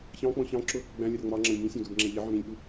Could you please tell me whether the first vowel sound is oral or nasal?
nasal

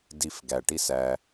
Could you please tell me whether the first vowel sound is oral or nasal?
oral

